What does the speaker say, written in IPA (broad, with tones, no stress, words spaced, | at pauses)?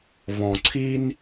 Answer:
βɔ̃˨ǀʰi˦n